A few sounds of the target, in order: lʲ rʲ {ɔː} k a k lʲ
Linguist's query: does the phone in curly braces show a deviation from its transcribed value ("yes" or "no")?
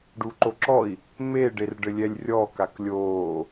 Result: no